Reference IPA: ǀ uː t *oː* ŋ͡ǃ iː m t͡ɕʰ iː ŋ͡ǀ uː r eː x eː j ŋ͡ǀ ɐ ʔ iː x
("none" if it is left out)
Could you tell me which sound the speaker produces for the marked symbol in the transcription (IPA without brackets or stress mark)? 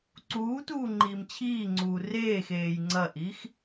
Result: uː